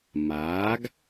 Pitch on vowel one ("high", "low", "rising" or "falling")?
rising